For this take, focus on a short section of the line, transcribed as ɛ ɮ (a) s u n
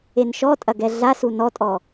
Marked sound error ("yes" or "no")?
no